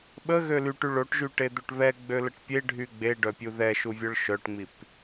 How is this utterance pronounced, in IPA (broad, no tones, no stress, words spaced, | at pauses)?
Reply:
ɓəɣø lyʈy ɭoʈʒyʈed̪øʈ βɛɡ͡bøləʈ pʲeɖʱy ɡ͡beɖœpʲu ðɛʃuvʲœɭ ʃœʈŋ͡mip